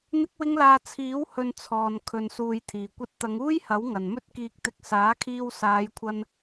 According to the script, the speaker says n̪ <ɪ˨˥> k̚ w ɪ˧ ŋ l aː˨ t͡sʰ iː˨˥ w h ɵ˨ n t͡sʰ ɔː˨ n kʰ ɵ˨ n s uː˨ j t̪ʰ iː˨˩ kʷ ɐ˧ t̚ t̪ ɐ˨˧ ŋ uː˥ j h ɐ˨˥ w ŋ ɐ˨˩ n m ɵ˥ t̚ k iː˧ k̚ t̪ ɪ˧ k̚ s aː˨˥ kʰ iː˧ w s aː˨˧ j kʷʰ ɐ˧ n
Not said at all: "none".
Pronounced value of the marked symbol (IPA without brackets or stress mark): ɪ˧